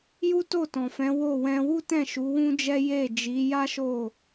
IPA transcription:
j u˦ t o˦˨ t ɔ̃˨ f ɛ̃˨˦ w o˦˨ w ɛ̃˧ w u˦ t ɛ̃˦˨ ʃ u˨˦ w ũ˦ d͡ʒ ɛ˦ j e˦˨ d͡ʒ i˨˦ j a˦ ʃ o˦˨

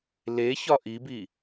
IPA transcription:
l e ç ɒ ʔ i b i

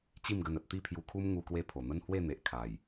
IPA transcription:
t͡ɕ i˥˧ m ɡ ə˧ n ə˨ t̚ t̪ i˥˧ pʰ j u˧ kʰ u˦ m ŋ u˦ k w e˦ pʰ o˨˩ n̪ ə˦ n h w e˥˧ n̪ e˨ ʔ kʰ a˨˩ j

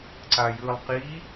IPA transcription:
ǀ a j ɯː lˠ q i

